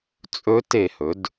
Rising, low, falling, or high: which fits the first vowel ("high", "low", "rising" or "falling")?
rising